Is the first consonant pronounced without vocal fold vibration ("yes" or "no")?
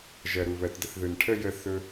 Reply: no